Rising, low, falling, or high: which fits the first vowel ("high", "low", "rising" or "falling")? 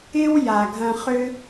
high